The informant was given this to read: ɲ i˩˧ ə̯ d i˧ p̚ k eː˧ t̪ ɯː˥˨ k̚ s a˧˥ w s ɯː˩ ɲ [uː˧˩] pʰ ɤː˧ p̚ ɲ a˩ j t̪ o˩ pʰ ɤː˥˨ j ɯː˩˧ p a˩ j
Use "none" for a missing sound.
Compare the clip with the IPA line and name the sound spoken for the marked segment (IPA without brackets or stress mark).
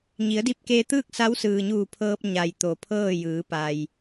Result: uː˧˩